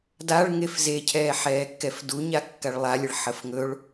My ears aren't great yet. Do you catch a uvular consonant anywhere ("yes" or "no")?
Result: no